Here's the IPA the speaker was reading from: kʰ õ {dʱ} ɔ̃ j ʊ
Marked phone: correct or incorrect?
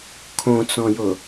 incorrect